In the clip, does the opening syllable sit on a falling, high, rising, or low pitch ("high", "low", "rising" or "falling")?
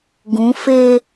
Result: rising